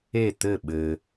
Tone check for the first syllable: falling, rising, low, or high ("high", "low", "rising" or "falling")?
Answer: falling